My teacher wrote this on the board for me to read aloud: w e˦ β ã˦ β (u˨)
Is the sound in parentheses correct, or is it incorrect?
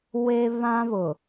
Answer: incorrect